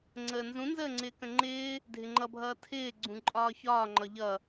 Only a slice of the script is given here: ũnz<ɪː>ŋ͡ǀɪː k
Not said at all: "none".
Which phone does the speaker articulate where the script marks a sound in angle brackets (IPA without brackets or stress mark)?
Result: əː